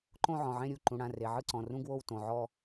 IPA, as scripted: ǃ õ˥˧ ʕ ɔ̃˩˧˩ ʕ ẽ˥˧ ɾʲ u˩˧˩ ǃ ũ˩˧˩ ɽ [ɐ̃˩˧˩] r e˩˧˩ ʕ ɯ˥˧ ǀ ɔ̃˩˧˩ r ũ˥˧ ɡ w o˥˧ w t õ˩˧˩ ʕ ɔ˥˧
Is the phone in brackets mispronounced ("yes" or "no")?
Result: yes